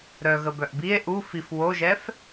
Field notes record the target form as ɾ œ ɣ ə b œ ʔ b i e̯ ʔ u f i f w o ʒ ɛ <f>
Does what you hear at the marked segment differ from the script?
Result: no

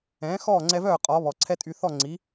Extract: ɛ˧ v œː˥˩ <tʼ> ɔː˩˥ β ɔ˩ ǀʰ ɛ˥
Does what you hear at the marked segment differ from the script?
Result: yes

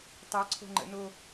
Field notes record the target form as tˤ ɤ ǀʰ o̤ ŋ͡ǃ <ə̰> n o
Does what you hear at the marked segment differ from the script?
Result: no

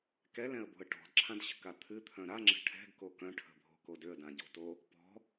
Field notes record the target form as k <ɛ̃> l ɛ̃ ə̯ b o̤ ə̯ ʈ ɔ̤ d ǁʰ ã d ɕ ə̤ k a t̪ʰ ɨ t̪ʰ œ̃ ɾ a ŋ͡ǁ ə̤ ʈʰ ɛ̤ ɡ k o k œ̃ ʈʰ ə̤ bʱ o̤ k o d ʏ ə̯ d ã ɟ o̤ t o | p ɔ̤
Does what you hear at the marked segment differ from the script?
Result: yes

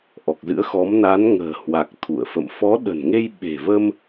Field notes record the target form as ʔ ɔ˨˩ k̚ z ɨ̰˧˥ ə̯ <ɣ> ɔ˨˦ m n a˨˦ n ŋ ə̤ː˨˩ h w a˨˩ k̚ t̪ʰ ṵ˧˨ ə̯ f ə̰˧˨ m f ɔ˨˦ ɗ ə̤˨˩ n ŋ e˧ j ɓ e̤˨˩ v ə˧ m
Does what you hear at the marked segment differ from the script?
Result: yes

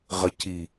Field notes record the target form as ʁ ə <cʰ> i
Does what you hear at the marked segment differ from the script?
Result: no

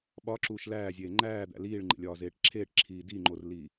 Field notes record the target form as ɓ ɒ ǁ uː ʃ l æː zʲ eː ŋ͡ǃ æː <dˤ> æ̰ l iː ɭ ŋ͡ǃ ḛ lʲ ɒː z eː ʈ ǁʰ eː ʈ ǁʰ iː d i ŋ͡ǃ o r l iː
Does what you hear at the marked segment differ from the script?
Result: yes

